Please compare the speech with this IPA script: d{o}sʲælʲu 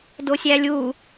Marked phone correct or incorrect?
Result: correct